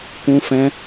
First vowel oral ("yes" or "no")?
no